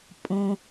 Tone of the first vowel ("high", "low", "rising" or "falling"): low